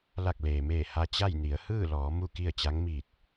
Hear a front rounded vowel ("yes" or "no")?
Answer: no